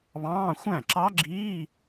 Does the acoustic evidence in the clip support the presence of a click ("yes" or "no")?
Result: yes